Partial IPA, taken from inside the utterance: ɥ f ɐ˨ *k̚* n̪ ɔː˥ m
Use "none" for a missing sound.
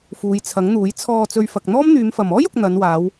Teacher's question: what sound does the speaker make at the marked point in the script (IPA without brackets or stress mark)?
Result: k̚